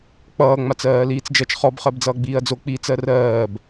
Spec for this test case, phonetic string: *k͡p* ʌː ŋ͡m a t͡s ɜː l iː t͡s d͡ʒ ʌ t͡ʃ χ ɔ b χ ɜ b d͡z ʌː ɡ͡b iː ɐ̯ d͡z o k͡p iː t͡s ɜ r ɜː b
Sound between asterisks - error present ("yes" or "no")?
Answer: no